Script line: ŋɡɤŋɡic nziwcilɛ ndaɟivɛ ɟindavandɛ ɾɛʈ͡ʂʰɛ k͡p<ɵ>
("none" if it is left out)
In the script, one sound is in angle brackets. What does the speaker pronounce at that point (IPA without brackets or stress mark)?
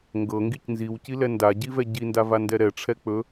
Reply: ɵ